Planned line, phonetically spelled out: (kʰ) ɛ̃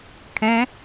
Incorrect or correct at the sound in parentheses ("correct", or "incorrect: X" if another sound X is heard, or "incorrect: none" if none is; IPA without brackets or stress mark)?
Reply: correct